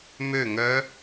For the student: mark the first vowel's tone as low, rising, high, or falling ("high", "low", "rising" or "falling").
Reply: falling